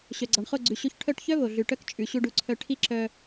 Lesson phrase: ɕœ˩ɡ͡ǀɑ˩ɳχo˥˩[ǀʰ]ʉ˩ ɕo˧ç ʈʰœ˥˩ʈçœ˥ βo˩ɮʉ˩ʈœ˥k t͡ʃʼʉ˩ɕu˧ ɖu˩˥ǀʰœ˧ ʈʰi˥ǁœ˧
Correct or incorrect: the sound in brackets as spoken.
incorrect: ɡ͡ǀ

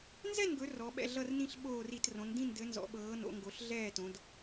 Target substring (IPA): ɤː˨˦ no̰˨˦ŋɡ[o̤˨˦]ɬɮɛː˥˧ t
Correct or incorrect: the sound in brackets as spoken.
incorrect: o˨˦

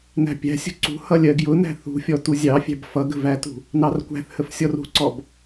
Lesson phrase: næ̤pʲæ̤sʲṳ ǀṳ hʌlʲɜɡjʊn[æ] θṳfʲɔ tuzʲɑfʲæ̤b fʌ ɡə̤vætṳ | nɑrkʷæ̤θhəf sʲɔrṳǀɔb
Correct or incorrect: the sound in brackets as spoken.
incorrect: æ̤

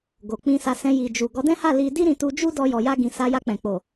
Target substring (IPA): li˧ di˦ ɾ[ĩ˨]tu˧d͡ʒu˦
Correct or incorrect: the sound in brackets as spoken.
incorrect: ĩ˧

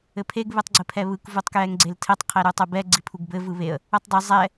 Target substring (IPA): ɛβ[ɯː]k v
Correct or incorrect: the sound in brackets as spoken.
incorrect: ɯ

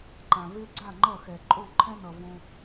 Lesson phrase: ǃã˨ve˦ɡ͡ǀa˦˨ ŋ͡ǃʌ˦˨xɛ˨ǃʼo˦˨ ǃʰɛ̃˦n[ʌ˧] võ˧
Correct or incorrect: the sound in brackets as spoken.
incorrect: ʌ˨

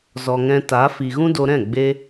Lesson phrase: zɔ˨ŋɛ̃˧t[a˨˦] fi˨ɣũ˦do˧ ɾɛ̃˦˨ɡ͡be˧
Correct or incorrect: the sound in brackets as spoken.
correct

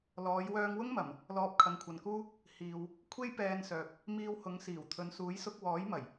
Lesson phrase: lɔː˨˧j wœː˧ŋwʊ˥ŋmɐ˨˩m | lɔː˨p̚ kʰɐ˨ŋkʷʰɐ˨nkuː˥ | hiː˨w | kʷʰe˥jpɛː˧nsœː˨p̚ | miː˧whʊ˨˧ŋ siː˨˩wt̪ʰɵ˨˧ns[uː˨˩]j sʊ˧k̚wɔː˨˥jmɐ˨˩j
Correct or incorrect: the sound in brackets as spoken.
incorrect: uː˨˥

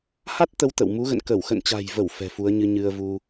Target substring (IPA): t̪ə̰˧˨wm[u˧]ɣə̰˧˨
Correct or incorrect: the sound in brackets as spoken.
incorrect: u˨˦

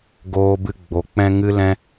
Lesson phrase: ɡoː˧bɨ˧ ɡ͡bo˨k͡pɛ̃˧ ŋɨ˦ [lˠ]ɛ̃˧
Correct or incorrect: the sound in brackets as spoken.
incorrect: l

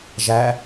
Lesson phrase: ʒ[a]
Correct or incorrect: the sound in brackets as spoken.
incorrect: æ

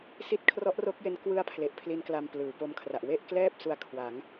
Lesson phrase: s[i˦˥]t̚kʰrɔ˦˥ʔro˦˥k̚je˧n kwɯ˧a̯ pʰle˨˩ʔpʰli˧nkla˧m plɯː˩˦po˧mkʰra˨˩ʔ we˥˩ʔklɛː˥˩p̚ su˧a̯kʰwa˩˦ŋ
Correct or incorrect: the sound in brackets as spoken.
correct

